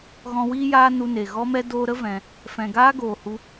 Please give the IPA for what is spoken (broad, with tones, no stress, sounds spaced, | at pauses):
ɣ ɔ̃˧ w iː˦ j aː˦ n u˧ n e˨ ɣ ɔ˦ m ɛ˦ d oː˧ ɾ ə˦ v ɛ̃˧ | f ɛ̃˨ ɡ aː˦ ɡ oː˨ h u˧